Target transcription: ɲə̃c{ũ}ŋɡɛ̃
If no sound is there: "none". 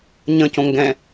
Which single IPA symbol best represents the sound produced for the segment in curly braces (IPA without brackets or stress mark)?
õ